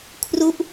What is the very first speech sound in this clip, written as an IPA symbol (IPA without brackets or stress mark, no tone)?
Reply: kʰ